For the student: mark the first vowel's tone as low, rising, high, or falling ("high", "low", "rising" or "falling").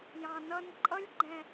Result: low